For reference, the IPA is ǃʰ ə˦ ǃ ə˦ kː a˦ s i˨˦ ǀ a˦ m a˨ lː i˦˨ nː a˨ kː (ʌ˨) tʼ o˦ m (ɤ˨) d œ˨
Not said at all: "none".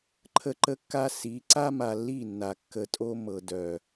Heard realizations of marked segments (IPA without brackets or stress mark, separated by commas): ə˨, ɤ˨